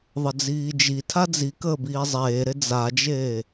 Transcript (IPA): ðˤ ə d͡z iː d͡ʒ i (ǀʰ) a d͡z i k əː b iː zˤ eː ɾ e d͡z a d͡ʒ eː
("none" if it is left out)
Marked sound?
tʰ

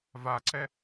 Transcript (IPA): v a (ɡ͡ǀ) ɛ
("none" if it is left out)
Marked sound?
ǀ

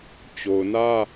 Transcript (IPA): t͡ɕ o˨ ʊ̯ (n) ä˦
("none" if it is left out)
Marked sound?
n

